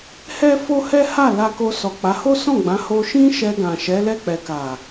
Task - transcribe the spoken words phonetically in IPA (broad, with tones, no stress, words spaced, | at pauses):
hɛ˦fo˦hɛ˦ha˦˨ la˧ko˧sɔ˨k͡pa˨˦ ho˦sɔ̃˦˨ɡ͡bã˨˦ ho˧ʃĩ˦ ʃɛ˧ɡã˨ ʃɛ˨˦lɛ˦˨k͡pɛ˨ ka˨